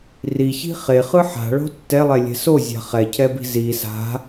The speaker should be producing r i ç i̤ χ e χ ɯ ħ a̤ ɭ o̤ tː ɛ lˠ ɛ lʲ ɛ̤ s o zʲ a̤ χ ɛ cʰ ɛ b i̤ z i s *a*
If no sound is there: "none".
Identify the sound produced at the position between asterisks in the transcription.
a̤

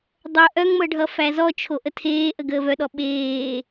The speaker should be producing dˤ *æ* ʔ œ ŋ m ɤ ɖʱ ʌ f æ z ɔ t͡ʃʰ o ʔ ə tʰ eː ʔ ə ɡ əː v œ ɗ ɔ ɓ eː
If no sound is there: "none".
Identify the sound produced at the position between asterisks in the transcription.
œ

